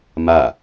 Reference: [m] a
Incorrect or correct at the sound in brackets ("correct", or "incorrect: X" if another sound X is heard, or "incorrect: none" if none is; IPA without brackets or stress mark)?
correct